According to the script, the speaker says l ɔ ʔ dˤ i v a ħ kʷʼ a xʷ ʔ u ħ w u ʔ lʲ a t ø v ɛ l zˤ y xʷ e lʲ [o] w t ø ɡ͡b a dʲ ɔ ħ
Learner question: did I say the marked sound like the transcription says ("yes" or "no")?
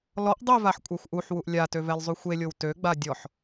yes